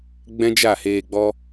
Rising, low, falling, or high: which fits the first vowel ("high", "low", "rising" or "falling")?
high